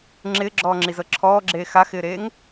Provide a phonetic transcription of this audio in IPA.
ŋ͡ǁ ɪː ɡ͡ǁ ɔː ŋ͡ǁ i z ɤ ǁʰ ɔː ɡ͡ǁ eː x a x ɪː ɾ eː ŋ

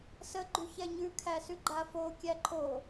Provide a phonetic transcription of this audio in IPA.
s ə ɡ͡ǃ ʉ ç ɛ ɲ ʉ kʰ æ s ʉ ɡ͡ǃ a f o kʲ æ ǃʰ o

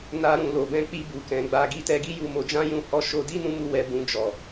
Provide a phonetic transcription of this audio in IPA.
n a˧ ɾ ũ˨ l o˨ b ɛ̃˧ k͡p i˧ b u˨ k ɛ̃˨ ɡ͡b a˧ ɡ i˧ t ɛ˧ ɡ i˦ j u˧ m o˧ d͡ʒ ã˦ j ũ˦˨ h ɔ˧ ʃ o˧ d i˦ n ũ˦ m u˦˨ w ɛ˧ b ũ˧ d͡ʒ ɔ˨

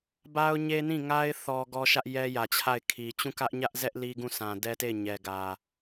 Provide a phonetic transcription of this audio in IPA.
b a˦ ʊ̯ ɲ e˦ n ĩ˦˨ ŋ a˦ ɪ̯ θ ɔ˦ ɡ ɔ˦ ʃ ä˦ ʔ j ɛ˦ j ä˨ t͡ɕʰ a˦˨ ɪ̯ kʰ i˨ t͡ɕ ũ˦˨ k ä˦ ʔ ɲ ä˦ ʔ z ɛ˦ ʔ l i˦ ɡ ũ˦˨ s ã˨ d ɛ˦ t e˦˨ ɪ̯ ɲ ɛ˨ ɡ ä˨

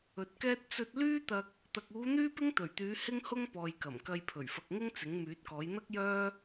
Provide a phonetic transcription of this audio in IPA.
ɵ˨ t̚ k ɛː˥ t̚ t͡s ɵ˧ t̚ l yː˥ t̪ ɐ˧ k̚ | t̪ ɐ˧ k̚ uː˨˧ n̪ yː˥ p ɪ˥ ŋ t̪ ɵ˨˩ ɥ t̪ yː˨˧ h ɪ˥ ŋ h ʊ˥ ŋ p ɔː˨ j k ɐ˨˩ m k ɐ˧ j pʰ ɵ˨˩ ɥ f ɐ˨ k̚ ŋ ɪ˥ ŋ t͡s ɪ˨˥ ŋ m yː˨˥ t̚ k ɔː˨˥ j n̪ ɐ˥ k̚ j œː˥

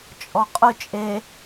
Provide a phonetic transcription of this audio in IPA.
t͡ʃʼ ɔ qʼ ʊ t͡ʃʼ e

